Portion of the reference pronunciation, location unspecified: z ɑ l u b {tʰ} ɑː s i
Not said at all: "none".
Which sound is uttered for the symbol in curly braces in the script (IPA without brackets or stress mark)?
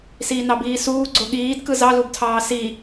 tʰ